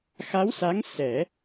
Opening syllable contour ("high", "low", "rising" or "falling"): rising